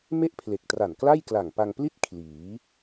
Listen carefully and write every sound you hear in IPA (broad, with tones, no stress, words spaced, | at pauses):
me˥˩ʔpʰle˨˩k̚tra˨˩n kla˥˩jkla˨˩ŋpa˧ŋpli˥˩t̚ kʰliː˩˦